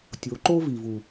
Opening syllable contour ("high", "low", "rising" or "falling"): rising